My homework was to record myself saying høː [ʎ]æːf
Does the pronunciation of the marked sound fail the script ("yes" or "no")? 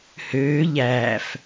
no